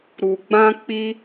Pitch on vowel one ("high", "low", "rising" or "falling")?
low